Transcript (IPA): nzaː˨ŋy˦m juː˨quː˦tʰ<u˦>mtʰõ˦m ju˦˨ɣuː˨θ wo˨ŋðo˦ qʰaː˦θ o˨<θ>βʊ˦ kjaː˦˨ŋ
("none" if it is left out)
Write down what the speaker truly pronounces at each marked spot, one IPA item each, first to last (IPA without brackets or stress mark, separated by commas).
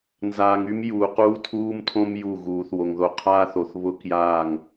uː˦, θ